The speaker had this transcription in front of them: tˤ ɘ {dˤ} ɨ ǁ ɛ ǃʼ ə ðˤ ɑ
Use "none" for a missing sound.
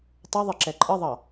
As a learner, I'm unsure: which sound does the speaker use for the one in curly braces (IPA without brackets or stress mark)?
ðˤ